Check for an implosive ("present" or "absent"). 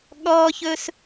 present